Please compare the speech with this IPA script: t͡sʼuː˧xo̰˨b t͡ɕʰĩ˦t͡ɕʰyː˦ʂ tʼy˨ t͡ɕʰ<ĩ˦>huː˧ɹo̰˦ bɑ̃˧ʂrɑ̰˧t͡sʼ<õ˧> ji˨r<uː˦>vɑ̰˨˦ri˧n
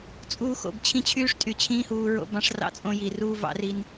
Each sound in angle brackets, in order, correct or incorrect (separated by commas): incorrect, correct, correct